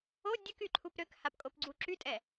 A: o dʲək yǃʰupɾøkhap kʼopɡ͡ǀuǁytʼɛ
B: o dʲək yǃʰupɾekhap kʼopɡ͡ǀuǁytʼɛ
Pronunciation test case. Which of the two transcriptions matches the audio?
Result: A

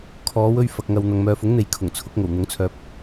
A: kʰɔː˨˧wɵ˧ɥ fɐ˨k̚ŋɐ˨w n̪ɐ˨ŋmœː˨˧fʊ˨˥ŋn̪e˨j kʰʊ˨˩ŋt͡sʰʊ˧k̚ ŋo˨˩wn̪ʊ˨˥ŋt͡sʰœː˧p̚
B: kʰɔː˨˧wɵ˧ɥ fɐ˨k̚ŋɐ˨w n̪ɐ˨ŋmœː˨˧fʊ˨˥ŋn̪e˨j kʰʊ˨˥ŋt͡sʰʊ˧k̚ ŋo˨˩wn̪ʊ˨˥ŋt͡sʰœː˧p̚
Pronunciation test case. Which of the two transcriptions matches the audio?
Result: A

